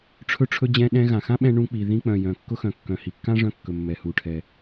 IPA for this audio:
ʈ͡ʂʰɵ˧ʈ͡ʂʰɵ˧ d͡ʑɛ̃˧ ɗɛ̃˧ɣã˩xã˥ ɓɛ̃˧ ɳũ˧k͡pi˩ ðĩ˧k͡pœ̃˩ jœ̃˩kːʊ˧xœ̃˩kːœ̃˩ hi˩kːã˥ʐœ̃˧ kːɵ˩mːɛ˩hu˩ʈʰɛ˩

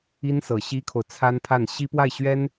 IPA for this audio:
i˥nsɤ˨˩ ɕi˥kʰo˨ʊ̯t͡sʰa˥npʰa˥˩n ɕi˥pwa˥˩ɪ̯ ɕɥɛ˥n

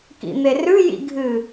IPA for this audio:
kḭn̪erʉ jḭɡʱɨ

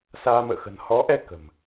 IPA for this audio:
saː˧mə̰ː˧˨xə̤˨˩n hɔ˨˦ʔɛ˧ kə̤˨˩m

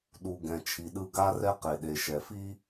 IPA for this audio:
ɗu˨ ɡɛ̃˨t͡ʃʰi˨ɗɯ˦ ɡa˦rɛ˦qe˨ɗe˨ ʃɛ˨fi˦

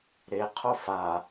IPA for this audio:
ɾe qʰofa

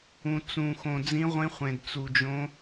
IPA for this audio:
ũ˧t͡sũ˧ xõ˧d͡zĩ˦˥ʁʷĩ˦˥ χʷẽ˧dt͡su˧d͡ʒõ˦˥

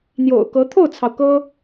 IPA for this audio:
n̪jo̰˨˩ʊ̯kɤ˧˥ t̪ʰo˥˩ʊ̯t͡sʰɑ˩ʊ̯ kɤ˥

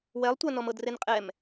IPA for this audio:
wɛlˠtʷanɔm ɤdrenqʼɛm

